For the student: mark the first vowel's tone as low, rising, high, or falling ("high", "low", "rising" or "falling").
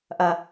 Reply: high